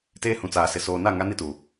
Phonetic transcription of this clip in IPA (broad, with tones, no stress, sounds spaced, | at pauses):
t eː˦ h ũ˨ t͡s aː˨ s ɪ˨ s oː˨ n a˦˨ ŋ a˦ n i˦ t uː˨